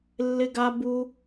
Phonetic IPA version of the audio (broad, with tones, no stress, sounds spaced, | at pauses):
lː ɪ˦ ɡ a˦ b u˦